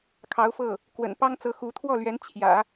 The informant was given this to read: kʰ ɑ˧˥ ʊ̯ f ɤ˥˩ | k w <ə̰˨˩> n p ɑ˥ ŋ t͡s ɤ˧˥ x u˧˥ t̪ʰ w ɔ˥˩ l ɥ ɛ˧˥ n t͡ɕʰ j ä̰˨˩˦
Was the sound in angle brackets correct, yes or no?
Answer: yes